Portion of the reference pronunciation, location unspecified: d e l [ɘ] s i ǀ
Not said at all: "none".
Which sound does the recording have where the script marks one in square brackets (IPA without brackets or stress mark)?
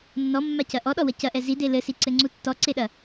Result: ɘ